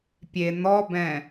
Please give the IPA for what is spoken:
pʲe n̪ɔbɛ̃

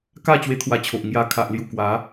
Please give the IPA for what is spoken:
ka˥˧ t͡ɕwe˦t̪ʰwa˧t͡ɕʰo˨ʔ ŋja˨˩ kʰa˨ʔlju˨˩kwa˨˦

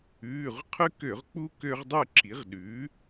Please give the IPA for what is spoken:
ʉː˩˧˩ʁqʰʉ˦kø˧˩˧ʁ k͡pu˦ kø˦ʁdˤʉ˥˨ǁʰi˩˥ʁ ɗʉː˩˥

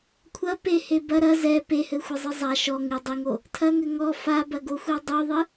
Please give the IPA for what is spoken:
kʷʰɐ pehe bɐ ɾɐ zɛ pehɘxʷɘzˤɨ zˤa ʃɔ ŋɨ dˤɨŋo | tʰɐŋɘ ŋɔ fabɐɡoxʷɛ dˤuðˤɨ

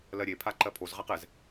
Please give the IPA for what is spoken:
lɜɾʲepʰa ǃɜpʰozʁaq ɛz

